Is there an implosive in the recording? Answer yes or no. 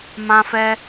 no